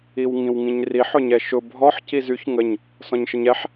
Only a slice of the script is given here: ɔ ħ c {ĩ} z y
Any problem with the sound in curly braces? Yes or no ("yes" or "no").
yes